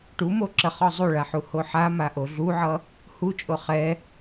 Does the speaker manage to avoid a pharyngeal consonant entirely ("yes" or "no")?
no